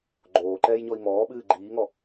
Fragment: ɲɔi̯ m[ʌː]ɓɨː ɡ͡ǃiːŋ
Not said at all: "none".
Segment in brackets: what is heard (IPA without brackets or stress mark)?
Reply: ɔː